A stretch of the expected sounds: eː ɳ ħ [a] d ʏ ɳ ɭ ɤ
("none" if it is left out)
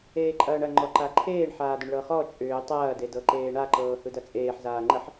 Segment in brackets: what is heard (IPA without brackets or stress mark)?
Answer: aː